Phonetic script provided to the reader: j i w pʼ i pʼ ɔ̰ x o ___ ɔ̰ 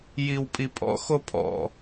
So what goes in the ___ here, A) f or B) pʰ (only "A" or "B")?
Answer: B